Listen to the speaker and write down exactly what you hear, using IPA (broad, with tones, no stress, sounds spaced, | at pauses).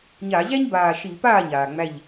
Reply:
ɲ a˧˩˧ ʑ æ˥ ɲ b aː˧˩ ʃ i˧˩˧ p aː˥˩ ɲ aː˩ ŋ͡m æ˧˩ ʎ